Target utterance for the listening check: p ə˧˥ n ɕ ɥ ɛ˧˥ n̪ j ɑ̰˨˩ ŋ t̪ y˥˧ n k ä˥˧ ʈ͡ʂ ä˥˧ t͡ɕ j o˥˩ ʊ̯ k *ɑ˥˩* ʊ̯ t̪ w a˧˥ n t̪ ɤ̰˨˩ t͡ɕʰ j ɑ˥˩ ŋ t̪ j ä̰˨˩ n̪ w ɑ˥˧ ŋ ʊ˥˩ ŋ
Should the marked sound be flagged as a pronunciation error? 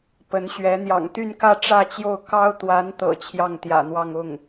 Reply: yes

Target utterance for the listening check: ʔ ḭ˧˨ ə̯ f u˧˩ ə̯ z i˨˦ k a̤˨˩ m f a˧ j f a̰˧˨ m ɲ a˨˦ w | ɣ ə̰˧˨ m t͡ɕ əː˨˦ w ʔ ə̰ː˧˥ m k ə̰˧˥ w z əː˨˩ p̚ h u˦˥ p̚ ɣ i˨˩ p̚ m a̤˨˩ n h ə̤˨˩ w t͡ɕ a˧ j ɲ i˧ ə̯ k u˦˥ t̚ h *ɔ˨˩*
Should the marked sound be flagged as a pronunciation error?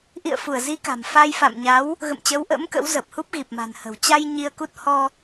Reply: yes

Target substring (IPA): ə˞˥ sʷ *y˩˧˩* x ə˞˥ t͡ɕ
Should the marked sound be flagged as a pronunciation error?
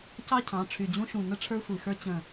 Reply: yes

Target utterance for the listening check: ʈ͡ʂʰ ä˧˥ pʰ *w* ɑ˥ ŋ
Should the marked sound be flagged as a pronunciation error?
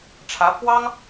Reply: no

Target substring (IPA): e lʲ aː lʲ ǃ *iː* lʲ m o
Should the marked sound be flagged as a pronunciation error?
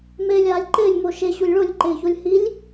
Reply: yes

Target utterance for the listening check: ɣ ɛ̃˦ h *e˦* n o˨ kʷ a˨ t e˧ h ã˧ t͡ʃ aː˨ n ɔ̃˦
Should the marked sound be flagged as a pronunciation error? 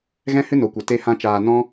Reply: yes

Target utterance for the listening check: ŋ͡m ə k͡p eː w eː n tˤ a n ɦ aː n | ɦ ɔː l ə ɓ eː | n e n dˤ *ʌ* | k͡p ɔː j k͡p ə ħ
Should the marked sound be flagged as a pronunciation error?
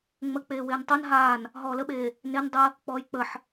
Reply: yes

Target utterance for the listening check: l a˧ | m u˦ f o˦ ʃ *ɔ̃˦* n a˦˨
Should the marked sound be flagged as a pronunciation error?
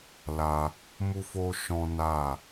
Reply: no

